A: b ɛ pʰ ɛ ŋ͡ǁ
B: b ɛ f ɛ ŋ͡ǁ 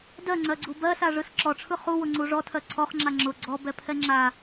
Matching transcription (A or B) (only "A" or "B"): A